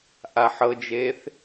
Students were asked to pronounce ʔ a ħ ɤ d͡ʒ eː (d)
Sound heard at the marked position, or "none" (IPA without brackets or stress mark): θ